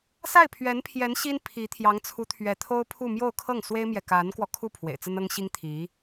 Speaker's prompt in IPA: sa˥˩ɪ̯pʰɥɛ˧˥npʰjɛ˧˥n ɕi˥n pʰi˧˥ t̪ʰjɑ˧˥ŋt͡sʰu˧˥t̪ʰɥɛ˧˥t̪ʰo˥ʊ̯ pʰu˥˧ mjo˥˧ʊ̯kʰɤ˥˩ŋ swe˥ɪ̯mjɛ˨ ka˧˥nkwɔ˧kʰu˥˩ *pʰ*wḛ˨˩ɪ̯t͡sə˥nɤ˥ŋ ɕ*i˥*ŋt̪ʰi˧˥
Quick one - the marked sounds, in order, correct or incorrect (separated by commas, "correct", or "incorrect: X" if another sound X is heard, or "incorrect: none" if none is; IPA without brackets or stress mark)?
correct, correct